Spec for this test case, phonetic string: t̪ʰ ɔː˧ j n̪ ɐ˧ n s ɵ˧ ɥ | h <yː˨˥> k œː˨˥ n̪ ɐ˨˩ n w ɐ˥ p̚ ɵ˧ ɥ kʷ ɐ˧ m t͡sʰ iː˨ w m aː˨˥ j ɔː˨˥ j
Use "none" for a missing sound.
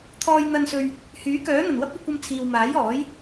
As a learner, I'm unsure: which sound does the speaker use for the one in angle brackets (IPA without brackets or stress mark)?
yː˨˥